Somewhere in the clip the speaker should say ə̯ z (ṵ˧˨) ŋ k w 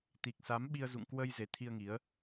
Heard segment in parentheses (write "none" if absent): ṵ˧˨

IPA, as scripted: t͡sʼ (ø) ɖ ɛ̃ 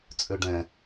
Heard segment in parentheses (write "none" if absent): ø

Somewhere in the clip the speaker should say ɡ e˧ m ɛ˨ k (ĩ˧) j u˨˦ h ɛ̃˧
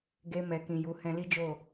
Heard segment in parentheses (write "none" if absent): ĩ˨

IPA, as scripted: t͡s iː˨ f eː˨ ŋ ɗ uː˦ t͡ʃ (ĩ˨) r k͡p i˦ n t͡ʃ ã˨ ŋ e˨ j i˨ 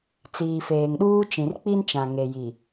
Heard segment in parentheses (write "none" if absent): ĩ˨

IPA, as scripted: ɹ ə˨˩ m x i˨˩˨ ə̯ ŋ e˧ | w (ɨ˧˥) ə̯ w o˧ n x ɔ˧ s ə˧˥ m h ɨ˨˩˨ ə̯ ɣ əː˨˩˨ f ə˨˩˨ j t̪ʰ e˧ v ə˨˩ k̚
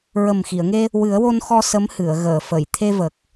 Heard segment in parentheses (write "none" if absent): ɨ˨˩˦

